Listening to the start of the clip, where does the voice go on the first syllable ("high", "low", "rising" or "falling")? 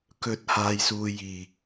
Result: low